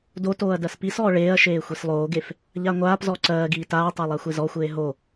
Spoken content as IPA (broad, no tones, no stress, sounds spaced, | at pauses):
d o t oː ɐ̯ d ɜ s p i s ɔː ɭ eː ɐ̯ ʃ eː xʷ i s lˠ oː ɡ e f | ʎ a ŋʷ aː p z ɔ ǀ ɜː ɡ iː t aː tˤ ɜ lˠ a xʷ e z ɔ xʷ eː ɦ o